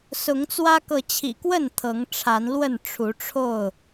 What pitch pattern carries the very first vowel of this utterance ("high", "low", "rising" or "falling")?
rising